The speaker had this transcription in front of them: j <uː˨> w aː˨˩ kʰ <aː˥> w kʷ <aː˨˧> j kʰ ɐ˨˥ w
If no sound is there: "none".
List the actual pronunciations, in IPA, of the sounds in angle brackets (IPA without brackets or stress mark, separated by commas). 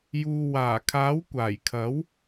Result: uː˨, aː˨˥, aː˨˩